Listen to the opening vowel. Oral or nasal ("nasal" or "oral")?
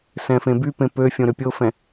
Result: nasal